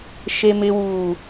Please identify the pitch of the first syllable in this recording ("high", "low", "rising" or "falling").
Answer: high